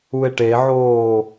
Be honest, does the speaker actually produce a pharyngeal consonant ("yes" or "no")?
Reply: yes